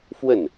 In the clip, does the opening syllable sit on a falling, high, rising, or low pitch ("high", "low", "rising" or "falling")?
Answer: falling